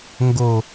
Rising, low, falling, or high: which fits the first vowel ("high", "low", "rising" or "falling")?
low